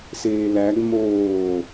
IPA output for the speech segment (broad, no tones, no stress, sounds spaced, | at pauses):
s eː l æ ɡ m oː